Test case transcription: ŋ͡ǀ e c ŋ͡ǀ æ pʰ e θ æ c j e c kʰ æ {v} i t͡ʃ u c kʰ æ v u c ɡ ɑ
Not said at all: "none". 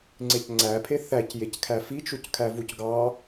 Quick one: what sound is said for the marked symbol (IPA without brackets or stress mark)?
f